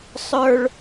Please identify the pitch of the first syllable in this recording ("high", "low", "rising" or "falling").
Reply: high